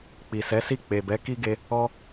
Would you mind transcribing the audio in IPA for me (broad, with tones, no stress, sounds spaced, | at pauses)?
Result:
k͡p i˨ s ɛ˨˦ s i˦˨ k͡p e˨ b ɛ˨˦ k i˦ ɡ e˧ | ɔ˦